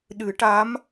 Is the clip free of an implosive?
no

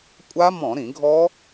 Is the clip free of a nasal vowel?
no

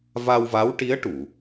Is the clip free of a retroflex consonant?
no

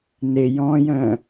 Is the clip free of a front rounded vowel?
no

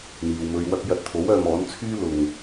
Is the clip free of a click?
yes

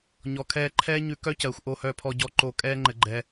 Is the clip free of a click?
no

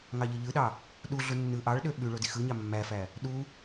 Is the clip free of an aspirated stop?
yes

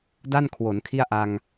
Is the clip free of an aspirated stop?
no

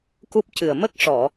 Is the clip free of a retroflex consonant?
no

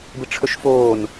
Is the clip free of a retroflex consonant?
no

